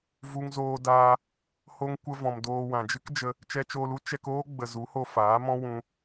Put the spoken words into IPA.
v u˧ ŋ z oː˧ d aː˧ | h o˧ ŋ kʷ ə˧ v ɔ̃˨ m d oː˧ w ã˨ d͡ʒ ɨ˦ k d͡ʒ ə˧ | t͡ʃ ɛ˧ t͡ʃ oː˧ l u˦ t͡ʃ ɛ˧ k oː˦ ɡ͡b ə˨ z u˨˦ h o˧ f aː˨˦ m ɔ̃˦ w ũ˧

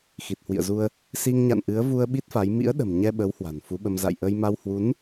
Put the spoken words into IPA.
x i˨˩ t̚ h w ḭ˧˨ ə̯ z u˧ ə̯ | s i˧ ŋ ɲ a̰˧˨ n ʔ ɨ˨˦ ə̯ v u˧ ə̯ ɓ i˦˥ t̚ f a˨˦ j m ḭ˧˥ ə̯ ɗ ə̤˨˩ m ɲ ɛ˧ ɓ ə˨˦ w h w a̤˨˩ n f u˨˦ ɓ ə˧ m z a̰˧˨ j ʔ ə˧ j m a˧ w h w u˨˦ n

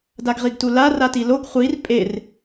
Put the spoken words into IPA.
d a ɡ ʁ i ɡ t u l a r a t i l o ɡ χʷ i r pʼ e r

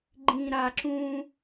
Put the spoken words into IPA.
ɡ͡ǃ ĩ˨ ɾ a˨ ǁ ũ˦

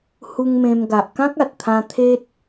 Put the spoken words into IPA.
h u˧ ŋ m ẽ˧ m ɡ a˨ ʔ k ã˦ k̚ a˨ t̚ t̪ʰ ã˧ t̪ʰ e˦ t̚

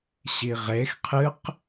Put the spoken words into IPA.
ɕ i ʁ e x qʰ ɨ q

